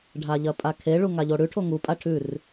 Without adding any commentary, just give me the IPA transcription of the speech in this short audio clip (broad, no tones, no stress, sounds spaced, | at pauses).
ɖʱ a ʎ ɐ pʼ a kʰ e ɭ u ŋ a ʎ o ɽ ʉ ʈʰ o ŋ u pʼ a ʈʰ ʉ r